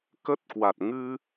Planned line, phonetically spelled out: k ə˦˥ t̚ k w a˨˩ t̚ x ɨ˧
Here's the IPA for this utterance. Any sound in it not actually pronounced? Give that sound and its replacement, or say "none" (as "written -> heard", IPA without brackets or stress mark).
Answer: x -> ŋ